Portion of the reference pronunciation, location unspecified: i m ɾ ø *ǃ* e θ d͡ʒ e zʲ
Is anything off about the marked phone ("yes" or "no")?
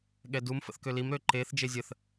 no